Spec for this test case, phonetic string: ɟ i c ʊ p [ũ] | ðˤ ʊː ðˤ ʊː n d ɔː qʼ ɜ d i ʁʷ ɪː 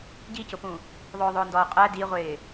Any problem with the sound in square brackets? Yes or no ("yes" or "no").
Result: no